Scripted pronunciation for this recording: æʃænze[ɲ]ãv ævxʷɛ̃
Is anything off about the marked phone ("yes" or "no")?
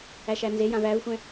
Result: yes